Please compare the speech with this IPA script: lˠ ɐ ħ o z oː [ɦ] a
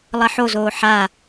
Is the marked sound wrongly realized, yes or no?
yes